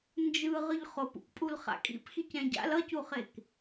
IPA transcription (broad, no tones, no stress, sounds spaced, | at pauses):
n d͡ʒ ɯ ʁ ɯ ʎ χ o p ṵ k pʼ u l χ a̰ kʼ ḭ p x i c ɛ̃ ɟ a̰ l ʌ c u χ e k